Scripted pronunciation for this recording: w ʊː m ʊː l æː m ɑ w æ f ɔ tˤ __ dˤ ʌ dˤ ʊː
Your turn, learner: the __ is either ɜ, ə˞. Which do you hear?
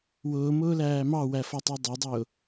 ɜ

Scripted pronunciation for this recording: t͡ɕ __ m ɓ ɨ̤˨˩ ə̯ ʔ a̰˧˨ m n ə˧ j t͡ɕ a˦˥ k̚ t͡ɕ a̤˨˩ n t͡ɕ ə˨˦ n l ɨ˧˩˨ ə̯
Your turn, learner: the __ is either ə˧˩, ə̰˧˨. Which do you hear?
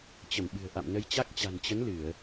ə˧˩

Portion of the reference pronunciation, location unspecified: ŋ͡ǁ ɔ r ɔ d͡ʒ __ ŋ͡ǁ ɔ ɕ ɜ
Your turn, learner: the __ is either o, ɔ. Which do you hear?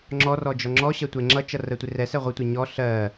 ɔ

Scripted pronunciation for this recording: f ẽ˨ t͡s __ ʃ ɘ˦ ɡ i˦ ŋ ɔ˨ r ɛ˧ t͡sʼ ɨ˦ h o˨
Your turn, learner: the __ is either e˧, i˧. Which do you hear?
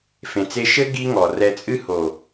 e˧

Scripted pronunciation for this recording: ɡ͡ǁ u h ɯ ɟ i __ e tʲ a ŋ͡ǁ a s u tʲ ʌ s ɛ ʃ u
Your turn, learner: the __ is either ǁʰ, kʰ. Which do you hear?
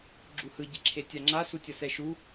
ǁʰ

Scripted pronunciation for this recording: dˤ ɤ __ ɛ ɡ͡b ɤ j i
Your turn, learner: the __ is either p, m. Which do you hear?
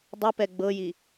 p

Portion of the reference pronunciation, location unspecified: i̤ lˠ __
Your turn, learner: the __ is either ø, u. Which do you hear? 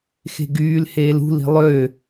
ø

